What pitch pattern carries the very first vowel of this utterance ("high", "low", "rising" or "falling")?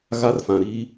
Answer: high